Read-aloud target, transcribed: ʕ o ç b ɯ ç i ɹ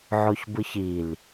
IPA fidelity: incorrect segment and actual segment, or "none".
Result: ɹ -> l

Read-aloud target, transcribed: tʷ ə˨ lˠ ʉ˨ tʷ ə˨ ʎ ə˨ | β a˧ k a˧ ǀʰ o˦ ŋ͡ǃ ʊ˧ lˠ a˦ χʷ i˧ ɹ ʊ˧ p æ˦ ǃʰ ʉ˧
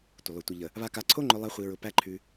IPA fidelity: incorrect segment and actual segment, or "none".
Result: none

